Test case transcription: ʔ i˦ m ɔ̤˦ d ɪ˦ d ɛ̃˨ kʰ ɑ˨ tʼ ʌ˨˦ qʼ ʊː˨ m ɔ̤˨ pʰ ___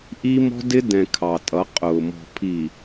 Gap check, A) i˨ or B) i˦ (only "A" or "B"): A